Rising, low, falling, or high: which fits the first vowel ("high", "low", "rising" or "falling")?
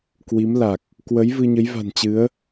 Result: rising